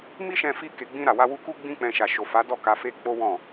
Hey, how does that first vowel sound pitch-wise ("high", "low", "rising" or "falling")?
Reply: high